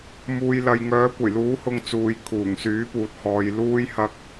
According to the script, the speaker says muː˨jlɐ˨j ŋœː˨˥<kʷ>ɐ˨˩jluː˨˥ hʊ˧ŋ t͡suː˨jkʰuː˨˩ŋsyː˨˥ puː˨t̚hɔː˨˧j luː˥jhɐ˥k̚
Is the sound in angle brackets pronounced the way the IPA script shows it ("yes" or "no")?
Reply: yes